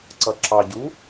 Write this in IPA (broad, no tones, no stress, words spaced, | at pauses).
ǀʌǁɑɟu